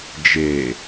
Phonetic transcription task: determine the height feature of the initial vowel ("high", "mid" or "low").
mid